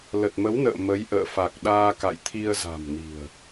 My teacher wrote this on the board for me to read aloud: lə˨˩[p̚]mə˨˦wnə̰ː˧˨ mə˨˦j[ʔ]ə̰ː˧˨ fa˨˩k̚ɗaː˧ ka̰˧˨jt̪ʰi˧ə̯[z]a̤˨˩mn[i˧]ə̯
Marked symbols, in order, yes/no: no, yes, yes, no

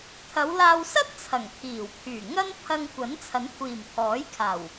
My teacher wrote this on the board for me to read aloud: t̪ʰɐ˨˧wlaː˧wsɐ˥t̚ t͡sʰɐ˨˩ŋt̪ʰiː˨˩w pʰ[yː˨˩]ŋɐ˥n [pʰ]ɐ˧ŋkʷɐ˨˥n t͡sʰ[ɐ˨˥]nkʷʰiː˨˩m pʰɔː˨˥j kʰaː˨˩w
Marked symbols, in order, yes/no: yes, yes, yes

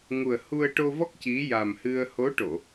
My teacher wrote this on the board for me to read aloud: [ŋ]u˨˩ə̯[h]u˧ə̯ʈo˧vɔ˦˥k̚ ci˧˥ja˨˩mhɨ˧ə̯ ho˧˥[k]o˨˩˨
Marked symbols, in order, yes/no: yes, yes, no

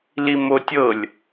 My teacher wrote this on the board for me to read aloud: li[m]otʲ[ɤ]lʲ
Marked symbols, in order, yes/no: yes, yes

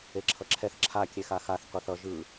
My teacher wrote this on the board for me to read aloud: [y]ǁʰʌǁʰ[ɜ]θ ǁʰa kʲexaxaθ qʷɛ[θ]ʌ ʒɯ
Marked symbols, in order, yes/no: no, no, yes

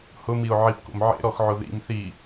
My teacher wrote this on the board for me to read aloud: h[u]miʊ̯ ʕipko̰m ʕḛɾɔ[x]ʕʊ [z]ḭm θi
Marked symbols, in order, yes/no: no, yes, no

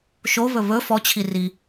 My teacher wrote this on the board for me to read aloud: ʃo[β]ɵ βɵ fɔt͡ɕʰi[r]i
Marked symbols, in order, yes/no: yes, yes

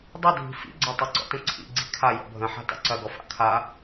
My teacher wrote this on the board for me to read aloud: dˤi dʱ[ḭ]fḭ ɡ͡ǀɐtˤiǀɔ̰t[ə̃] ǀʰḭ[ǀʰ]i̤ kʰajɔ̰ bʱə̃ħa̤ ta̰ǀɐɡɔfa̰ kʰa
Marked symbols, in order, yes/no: no, yes, no

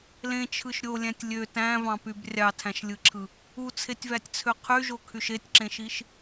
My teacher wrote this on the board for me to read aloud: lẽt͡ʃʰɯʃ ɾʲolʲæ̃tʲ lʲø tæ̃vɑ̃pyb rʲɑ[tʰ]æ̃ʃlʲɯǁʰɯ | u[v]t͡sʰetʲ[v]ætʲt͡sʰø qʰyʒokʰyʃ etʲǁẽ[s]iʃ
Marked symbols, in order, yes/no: yes, no, yes, no

